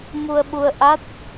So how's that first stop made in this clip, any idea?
implosive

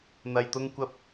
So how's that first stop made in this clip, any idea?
plain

